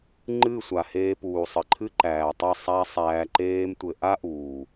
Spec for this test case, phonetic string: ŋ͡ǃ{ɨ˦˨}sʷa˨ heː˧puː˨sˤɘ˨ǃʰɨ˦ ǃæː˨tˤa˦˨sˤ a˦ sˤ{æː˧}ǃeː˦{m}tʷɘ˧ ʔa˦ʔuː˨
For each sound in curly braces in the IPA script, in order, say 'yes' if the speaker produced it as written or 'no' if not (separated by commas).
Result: yes, yes, yes